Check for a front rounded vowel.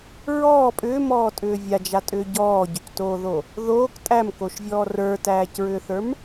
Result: present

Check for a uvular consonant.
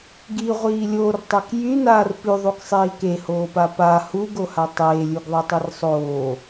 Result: present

